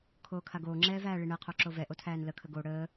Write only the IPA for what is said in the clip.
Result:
kʰ oː kʰ a ɡ oː ŋ͡ǁ ɛː v æː ɭ i ɳ ɛ qʰ o ǁ o v ɛ ʔ o tʰ æː n l ə kʰ ə ɡ o ɽ əː

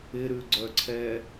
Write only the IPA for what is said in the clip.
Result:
ɪ ɾ ʉ ɡ͡ǀ œ ǀʰ ɛ

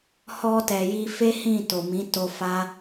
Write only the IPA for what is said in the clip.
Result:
h ɔ˧ t ɛ˨ j i˧ f e˦ h ĩ˦˨ t o˨ m ĩ˨˦ t o˧ f a˦

